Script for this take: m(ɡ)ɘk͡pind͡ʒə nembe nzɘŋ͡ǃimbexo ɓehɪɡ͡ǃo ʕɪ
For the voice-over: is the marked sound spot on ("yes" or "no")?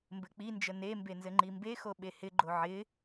no